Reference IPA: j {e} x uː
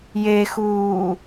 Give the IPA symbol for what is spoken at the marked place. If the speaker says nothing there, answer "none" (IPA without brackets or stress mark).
e